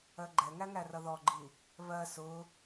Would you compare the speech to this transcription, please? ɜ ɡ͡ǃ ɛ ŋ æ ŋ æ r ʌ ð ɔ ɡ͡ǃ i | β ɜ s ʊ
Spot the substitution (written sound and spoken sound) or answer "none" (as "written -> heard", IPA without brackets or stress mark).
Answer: none